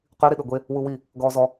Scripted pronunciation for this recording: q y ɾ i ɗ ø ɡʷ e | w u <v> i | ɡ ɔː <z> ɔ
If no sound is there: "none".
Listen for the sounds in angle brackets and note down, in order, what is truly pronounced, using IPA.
w, z

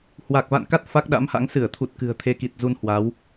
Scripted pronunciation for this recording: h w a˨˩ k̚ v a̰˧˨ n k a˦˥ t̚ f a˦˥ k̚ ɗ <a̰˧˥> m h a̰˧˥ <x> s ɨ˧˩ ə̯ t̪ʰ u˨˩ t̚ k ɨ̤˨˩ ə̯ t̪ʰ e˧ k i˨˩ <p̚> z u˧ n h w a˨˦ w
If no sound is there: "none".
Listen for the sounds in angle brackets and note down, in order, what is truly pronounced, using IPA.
a̰˧˥, ŋ, t̚

